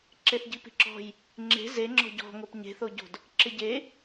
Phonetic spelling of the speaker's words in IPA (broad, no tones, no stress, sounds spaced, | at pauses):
ǁ e θ ɟ i p i̤ ǁ ɔ̤ j | ŋ͡ǁ e̤ z e ŋ͡ǁ ɔ̤ ɟ ɔ̤ ŋ o p ɲ e̤ θ o ɟ o̤ d | ǁ ɪ ɟ e